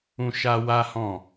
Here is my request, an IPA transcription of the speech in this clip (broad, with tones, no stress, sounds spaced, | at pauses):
ũ˦ ʃ a˦ w a˦ h ɔ̃˦˨